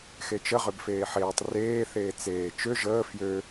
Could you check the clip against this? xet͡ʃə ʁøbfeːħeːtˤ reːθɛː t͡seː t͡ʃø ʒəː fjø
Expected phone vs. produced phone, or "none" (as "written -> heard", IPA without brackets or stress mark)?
ɛː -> eː